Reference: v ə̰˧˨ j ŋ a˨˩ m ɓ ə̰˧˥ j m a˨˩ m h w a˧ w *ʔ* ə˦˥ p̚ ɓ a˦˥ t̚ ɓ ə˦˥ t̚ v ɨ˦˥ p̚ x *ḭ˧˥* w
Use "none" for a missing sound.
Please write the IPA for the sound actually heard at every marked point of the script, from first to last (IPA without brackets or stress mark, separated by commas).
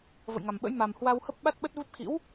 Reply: h, ḭ˧˥